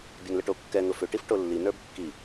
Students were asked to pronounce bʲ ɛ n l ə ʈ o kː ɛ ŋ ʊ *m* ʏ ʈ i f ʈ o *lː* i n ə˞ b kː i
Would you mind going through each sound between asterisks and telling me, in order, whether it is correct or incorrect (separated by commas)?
incorrect, correct